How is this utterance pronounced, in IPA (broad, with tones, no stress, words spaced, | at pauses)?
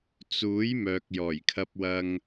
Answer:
t͡suː˨˥j mœː˨k̚jɔː˨˩jkʰɐ˧p̚wɐ˧ŋ